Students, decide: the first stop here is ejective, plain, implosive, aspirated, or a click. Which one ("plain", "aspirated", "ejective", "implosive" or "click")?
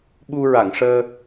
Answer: implosive